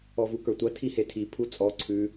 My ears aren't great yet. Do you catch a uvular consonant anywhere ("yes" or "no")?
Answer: no